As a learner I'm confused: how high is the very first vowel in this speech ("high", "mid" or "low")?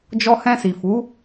mid